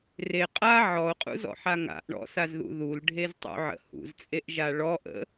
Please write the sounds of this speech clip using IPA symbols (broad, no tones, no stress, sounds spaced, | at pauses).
r e qʼ a ʕ ɔ o̯ qʼ ṵ z ɔ̰ ħ a ŋ a̰ ʔ ɳ ɔ̰ s a z ð ṵ ð u l ɖʱ e z tˤ ṵ ʕ ə̰ h ṵ z t͡sʼ e ʔ ʒ a ɭ ɔ ʔ ə̰